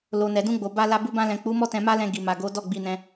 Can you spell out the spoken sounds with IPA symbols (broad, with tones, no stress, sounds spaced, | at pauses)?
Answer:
l o˨ n ɛ˨ d ũ˧ ɡ͡b o˨ b a˧ l a˧ b u˧ b ã˧ l ɛ̃˨ k͡p u˨˦ m ɔ˦ t ɛ̃˧ m a˦ l ɛ̃˧ ɡ i˨ m a˨ ɡ o˨˦ d ɔ˦˨ ɡ͡b i˧ n ɛ̃˧